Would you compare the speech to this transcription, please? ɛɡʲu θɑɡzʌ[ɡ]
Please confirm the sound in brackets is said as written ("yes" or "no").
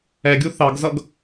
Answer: yes